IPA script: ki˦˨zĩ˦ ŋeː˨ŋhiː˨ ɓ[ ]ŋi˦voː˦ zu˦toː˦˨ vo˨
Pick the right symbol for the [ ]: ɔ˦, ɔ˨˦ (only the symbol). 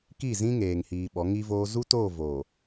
ɔ˨˦